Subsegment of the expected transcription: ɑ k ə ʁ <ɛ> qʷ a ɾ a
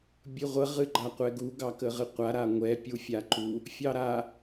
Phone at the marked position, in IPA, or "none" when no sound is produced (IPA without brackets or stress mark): ɨ